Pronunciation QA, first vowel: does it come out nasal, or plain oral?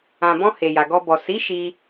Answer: nasal